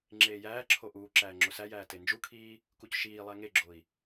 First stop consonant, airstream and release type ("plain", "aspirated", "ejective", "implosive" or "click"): click